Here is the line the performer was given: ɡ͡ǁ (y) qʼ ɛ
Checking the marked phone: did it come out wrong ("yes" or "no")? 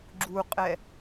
yes